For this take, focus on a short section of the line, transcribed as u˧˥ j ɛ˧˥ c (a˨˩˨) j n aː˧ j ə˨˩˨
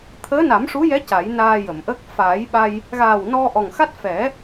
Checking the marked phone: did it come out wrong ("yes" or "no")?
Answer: yes